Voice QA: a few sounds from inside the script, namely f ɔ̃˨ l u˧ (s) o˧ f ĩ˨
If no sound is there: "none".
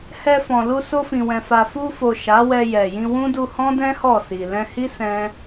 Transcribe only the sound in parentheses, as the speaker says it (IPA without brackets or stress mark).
s